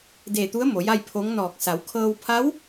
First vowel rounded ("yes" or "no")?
no